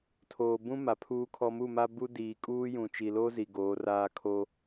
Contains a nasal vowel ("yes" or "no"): yes